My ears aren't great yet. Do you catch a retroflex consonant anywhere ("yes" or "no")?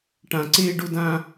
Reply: yes